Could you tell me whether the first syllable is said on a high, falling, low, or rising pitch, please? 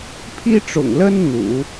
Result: high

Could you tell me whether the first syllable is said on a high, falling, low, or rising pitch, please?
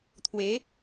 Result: rising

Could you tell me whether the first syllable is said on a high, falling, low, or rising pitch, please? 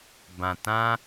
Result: low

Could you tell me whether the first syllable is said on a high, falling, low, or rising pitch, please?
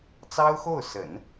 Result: high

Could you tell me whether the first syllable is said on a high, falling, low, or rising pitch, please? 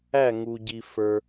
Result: falling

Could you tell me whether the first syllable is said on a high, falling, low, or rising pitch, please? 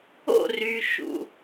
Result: falling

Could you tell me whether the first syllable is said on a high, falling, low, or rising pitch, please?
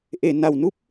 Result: low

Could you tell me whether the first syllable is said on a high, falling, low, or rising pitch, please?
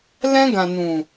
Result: high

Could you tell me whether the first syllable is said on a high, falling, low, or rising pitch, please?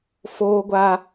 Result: high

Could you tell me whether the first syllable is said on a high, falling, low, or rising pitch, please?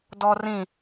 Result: high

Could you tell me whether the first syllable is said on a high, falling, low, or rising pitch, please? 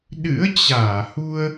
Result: rising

